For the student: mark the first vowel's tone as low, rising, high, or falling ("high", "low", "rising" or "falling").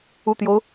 low